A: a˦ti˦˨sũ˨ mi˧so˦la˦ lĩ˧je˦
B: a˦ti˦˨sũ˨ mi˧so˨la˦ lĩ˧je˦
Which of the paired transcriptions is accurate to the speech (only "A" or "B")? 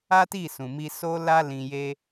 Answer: A